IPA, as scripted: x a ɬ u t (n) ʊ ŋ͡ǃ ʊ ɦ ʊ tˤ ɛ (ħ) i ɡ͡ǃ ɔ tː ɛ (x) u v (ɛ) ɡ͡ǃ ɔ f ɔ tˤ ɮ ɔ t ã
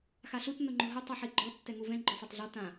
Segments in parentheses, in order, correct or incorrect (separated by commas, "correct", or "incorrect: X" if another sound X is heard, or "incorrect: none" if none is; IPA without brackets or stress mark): correct, correct, incorrect: ŋ, incorrect: ɛ̃